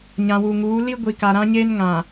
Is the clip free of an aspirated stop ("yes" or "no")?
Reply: yes